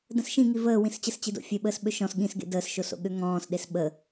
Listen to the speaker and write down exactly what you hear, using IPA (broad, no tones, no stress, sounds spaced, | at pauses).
d ə̃ s ʃ ĩ ŋ i v əː w ĩ s t͡ɕ ə s t͡ɕ i d o̰ fʲ ø ɓ əː s ɓ ø ʃ ɔ̃ s ɠ ĩ s ɡ ḛ d əː s ʃ o s o̰ ɠ ø ŋ ɔ̃ː s ɗ e s ɓ ə